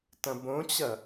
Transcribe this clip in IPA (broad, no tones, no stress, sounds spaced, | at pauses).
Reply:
t ɐ̃ b õ t͡ɕ ɐ